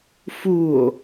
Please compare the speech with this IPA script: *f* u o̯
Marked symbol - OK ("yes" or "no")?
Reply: yes